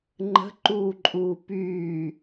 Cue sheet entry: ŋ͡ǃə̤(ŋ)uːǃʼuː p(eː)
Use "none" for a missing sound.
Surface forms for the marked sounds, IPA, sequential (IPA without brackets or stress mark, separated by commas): ǃ, yː